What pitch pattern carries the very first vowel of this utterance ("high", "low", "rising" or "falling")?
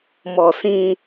low